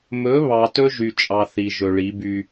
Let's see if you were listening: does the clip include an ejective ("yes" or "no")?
yes